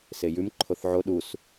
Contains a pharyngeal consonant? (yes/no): yes